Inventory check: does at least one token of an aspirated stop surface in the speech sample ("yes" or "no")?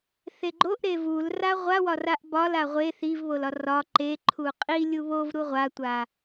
yes